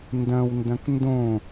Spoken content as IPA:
n d ɐ̃ w n d ɐ̃ k n d õ

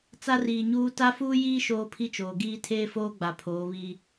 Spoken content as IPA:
t͡s a˦ r iː˨ ɲ uː˦ t a˦ f uː˦ j iː˦ ʃ oː˦ pʰ i˦ t͡ʃ oː˨ ɡ iː˦ tʰ eː˦ f oː˦ ɡ͡b a˨ pʰ oː˨˦ β i˦

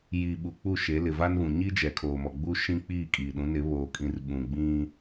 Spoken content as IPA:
j i˨ ɓ u˨ k͡p u˦˨ ʃ e˨˦ l ɪ˨ v a˦ n β ũ˨ ɲ i˦ d͡ʒ ɛ˨ kʰ oː˨ m ɔ˨ ɡ͡b u˦ ʃ ĩ˦ k͡p iː˦˨ kʼ iː˨ ɗ ũ˨˦ n ɪ˨˦ β oː˨ kʼ ĩ˨ r ɓ ũ˨ ɡ͡b ĩ˦

